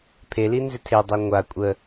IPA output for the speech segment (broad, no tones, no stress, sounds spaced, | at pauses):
pʰ e l i n z ʏ tʰ e dˤ i ŋʷ a kʷʼ ə